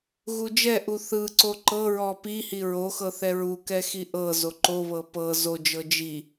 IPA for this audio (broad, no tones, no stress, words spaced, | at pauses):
ɣud͡ʒɛʔu θɯǀo ǃɤɹɔ pihi ɹoxɤ θɛɹukɛ xiʔɤzo ǃoβɤ pɤ zod͡ʒɤ d͡ʒi